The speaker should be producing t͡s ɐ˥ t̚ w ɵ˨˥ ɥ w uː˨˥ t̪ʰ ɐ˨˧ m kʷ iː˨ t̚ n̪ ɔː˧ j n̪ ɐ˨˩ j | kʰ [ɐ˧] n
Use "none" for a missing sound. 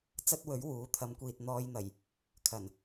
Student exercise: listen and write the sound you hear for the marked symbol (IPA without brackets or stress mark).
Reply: ɐ˨˩